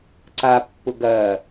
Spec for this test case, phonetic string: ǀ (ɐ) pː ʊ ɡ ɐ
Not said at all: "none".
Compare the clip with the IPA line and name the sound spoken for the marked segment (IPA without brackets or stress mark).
a